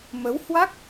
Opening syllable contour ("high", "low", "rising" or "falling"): rising